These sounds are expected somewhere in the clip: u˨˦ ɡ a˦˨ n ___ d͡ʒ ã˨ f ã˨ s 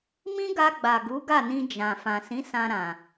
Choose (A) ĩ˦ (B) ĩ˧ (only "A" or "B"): B